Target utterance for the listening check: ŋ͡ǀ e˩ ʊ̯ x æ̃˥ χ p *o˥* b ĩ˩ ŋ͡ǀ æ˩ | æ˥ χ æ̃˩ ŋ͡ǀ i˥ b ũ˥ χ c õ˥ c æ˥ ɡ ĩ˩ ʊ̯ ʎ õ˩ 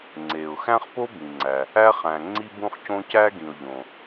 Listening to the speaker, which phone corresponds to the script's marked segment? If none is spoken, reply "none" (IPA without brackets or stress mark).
o˥